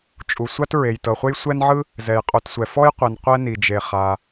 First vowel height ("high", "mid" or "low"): high